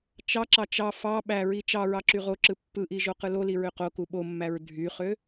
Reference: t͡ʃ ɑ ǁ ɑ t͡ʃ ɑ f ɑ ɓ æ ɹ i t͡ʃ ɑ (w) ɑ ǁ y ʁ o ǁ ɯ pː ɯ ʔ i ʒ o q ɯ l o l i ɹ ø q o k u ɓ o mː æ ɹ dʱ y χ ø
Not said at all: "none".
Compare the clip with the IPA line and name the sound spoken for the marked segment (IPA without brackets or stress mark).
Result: ɹ